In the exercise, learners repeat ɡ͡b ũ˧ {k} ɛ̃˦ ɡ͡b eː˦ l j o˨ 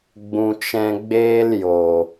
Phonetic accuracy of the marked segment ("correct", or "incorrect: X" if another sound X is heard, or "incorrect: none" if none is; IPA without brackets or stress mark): incorrect: t͡ʃ